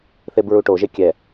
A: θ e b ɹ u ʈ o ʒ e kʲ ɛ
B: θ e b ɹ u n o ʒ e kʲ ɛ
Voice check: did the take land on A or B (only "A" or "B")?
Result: A